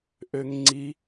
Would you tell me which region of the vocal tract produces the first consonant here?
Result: throat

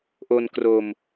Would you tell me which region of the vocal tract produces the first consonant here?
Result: throat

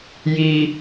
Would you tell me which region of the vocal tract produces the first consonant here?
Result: palate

